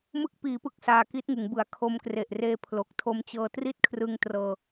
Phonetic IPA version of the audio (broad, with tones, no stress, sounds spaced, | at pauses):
m ɯ˦˥ k̚ p iː˩˦ p ɯ˨˩ k̚ s aː˧ k i˦˥ t̚ ŋ ɯ˩˦ ŋ b ɯ˩˦ a̯ kʰ o˧ m k r e˨˩ ʔ r eː˦˥ pʰ l o˨˩ k̚ tʰ o˧ m t͡ɕ ɤː˧ t r i˥˩ t̚ kʰ r ɯ˧ ŋ t r ɤː˧